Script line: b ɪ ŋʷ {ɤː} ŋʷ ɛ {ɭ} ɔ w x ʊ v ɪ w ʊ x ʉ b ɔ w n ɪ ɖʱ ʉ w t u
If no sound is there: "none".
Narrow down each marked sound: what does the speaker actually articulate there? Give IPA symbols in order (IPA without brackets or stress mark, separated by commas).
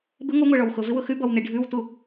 ɤ, ɭ